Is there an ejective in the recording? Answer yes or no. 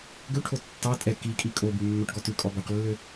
yes